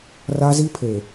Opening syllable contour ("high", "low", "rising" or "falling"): high